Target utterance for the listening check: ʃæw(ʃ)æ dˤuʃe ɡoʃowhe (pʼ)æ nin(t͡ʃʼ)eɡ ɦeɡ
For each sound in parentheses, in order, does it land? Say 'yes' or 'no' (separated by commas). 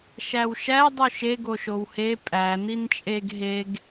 yes, yes, yes